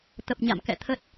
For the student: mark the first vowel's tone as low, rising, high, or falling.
low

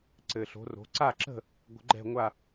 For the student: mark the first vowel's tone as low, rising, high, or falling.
low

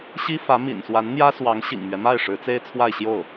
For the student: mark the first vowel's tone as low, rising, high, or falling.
high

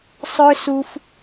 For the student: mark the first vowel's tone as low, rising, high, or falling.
high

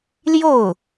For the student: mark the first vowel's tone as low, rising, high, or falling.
falling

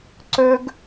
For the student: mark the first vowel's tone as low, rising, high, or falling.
high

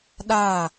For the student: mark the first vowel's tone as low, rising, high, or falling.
falling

